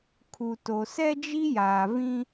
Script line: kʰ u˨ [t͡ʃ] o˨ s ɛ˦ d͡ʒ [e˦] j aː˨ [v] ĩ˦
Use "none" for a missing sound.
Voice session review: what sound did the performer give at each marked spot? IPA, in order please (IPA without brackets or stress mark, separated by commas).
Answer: t, i˦, v